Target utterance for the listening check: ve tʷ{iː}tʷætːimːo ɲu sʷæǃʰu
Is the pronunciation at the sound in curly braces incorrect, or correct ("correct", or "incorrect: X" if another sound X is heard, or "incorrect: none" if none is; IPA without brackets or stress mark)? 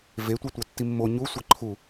incorrect: i